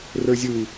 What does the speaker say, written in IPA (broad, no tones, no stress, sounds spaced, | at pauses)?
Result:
r ə˞ zʲ ɯ i̯